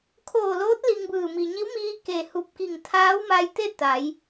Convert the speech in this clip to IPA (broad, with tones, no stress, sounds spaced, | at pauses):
kʰ oː˧˩ l oː˧˥ t̚ l i˧ ŋ b ɯː˧˩ m i˩ ɲ i˧˥ w m iː˧ k e˧˩ h u˧˩ p̚ k i˧˩ ŋ t̪ʰ aː˧˥ w m a˧ j t̪ e˥˨ t̪ a˩˧ j